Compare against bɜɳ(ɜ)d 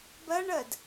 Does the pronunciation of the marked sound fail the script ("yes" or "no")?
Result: no